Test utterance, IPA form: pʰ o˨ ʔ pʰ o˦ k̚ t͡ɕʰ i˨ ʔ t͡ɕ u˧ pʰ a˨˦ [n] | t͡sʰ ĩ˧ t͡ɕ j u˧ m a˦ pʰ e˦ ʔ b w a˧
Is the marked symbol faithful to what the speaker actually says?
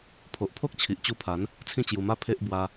yes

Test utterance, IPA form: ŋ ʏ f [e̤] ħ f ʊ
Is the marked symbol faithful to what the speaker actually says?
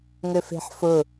yes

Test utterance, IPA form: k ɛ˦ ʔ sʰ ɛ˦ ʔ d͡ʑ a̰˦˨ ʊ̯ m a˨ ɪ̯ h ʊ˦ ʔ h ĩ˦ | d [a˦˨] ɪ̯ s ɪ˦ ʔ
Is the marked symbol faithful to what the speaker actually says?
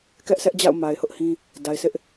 no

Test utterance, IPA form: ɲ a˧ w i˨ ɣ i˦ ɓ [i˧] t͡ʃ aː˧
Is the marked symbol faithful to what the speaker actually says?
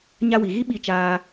yes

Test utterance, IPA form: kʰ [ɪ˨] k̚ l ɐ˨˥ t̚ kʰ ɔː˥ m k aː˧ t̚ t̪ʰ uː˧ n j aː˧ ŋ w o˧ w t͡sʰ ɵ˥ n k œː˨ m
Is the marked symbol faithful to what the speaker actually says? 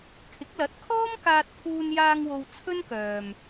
no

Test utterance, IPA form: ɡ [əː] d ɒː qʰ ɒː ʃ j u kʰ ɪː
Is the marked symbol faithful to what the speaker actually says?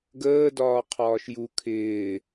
yes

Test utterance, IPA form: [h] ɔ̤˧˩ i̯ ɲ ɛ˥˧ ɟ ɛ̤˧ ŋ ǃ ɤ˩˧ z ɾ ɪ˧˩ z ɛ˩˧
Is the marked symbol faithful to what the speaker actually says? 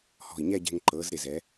yes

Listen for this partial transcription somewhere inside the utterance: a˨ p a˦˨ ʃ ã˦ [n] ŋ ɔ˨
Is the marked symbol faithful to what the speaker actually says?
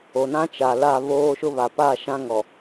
no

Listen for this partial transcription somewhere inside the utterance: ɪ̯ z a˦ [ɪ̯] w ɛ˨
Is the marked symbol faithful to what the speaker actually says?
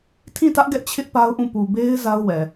no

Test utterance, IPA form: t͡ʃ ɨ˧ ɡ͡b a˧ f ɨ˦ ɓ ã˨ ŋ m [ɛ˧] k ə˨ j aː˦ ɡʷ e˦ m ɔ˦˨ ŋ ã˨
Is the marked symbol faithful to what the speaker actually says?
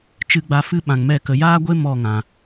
no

